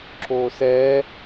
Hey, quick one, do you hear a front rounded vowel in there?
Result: no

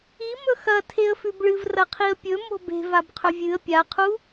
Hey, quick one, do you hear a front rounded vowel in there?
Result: no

